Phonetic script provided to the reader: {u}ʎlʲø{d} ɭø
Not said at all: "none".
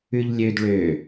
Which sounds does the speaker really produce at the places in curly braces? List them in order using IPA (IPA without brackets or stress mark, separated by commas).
ʉ, d